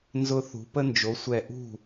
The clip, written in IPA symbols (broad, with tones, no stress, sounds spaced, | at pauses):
n z ʊ˦ θ ṳ˨˦ p ə˦ n d͡ʒ o˨˦ sʷ ɛ˧˩ ʔ ṳ˥˨